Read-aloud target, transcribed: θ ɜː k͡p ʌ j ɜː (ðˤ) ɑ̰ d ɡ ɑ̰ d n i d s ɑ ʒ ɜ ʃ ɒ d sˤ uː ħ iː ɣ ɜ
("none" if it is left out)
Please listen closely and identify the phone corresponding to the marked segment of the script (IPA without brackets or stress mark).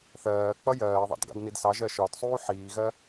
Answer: ðˤ